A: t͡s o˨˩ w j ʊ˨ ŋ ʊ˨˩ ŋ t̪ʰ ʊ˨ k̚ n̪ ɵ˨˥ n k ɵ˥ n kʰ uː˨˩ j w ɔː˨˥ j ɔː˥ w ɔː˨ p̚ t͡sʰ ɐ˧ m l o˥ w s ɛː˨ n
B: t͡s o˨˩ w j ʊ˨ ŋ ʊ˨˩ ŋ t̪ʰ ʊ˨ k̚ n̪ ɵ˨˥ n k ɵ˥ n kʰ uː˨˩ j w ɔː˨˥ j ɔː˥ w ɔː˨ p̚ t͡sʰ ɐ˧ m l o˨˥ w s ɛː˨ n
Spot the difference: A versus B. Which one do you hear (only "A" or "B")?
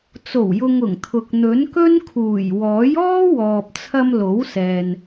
B